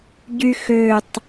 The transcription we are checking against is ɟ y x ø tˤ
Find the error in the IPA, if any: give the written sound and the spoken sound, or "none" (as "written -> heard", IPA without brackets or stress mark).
none